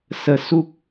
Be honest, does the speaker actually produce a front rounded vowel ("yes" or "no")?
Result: no